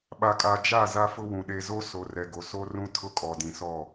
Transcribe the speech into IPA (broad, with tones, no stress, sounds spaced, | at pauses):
ɓ a˨ kʼ a˨ d͡ʒ a˦˨ z a˦ f ʊ˦ w ũ˨ ɗ e˨ z o˦ s o˨ r ɛ˨ ɡ o˨ s o˦ r ũ˦ tʰ ʊ˦ kʼ ɔ˨ d ĩ˨ s ɔ˦˨